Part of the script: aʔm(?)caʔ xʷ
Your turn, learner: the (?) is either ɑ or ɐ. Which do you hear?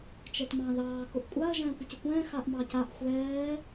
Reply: ɑ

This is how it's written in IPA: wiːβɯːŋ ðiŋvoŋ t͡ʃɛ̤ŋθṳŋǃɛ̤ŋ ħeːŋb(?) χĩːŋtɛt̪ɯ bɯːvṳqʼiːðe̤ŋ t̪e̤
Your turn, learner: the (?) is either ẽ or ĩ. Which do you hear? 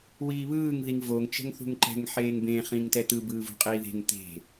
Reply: ẽ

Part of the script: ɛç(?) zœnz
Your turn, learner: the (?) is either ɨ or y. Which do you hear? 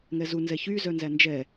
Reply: y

